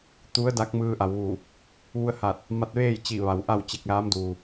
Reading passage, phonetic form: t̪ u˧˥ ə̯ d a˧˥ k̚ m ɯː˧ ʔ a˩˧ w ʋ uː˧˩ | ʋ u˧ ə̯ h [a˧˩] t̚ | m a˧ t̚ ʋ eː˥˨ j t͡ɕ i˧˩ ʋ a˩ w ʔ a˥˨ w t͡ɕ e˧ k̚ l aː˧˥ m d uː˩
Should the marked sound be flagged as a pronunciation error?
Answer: yes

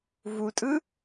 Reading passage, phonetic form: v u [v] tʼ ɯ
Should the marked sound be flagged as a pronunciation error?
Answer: yes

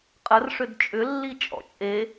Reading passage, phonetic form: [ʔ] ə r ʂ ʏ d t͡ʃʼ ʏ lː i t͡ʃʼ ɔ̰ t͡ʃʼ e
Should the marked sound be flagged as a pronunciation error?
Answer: yes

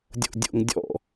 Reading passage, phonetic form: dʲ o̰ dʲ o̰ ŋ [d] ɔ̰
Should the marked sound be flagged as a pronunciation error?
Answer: yes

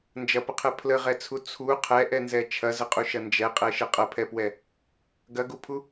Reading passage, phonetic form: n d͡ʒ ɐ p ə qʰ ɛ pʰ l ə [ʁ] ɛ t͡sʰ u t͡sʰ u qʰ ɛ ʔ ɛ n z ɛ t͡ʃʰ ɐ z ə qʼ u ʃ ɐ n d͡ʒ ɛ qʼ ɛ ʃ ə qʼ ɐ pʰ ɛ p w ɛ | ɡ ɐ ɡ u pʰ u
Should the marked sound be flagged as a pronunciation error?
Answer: no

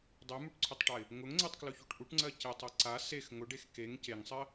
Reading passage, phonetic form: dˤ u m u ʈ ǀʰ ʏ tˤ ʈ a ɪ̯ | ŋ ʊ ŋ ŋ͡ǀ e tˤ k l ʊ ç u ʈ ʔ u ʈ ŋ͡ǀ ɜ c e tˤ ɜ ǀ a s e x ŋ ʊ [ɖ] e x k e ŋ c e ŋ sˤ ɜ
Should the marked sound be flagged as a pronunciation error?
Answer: no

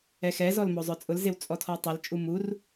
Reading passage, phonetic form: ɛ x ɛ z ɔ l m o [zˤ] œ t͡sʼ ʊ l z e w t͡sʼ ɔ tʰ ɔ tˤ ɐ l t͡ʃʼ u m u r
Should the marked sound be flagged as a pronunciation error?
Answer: no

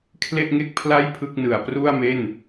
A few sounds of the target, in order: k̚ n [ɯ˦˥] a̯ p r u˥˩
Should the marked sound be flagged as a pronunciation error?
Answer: yes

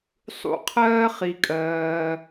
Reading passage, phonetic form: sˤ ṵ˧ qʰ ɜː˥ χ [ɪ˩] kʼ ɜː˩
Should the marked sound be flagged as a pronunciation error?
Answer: yes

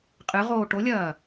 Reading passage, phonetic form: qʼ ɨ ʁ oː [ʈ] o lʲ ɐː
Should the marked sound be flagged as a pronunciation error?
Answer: no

